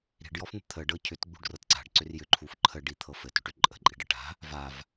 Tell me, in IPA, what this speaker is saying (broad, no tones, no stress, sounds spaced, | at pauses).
ɾ i̤ ɖ j ɔ f n̪ ə̤ t̪ʰ ə ɖ ɤ cʰ ʏ t ɡ͡b ṳ ɖ r ɤ t ǀ a̤ ɖ ǀ ʏ r j ʏ ǃʰ u f ǃʰ ə ɖ i t̪ʰ ɤ f ɘ t ʏ ʈ ʏ ǃʼ ə̤ ǃʼ i̤ ɖ ə ʈ a̤ | v a v